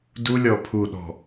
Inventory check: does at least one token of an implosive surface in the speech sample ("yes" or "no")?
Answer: yes